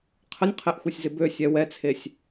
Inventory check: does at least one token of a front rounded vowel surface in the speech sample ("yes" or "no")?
yes